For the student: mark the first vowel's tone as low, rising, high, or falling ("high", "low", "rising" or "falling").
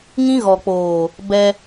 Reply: high